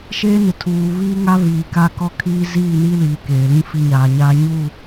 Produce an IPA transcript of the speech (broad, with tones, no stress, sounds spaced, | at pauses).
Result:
ʃ eː˦ n ɪ˨ tʰ uː˨ β iː˦ ŋ a˦ β iː˨ k a˦ k ɔ˦ kʰ iː˦ z iː˦˨ n i˦ l iː˨ k eː˨ l ĩ˦ f i˦ ɲ aː˨ ɲ aː˦ ɲ u˦˨